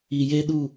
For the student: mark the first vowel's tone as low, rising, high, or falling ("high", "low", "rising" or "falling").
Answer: low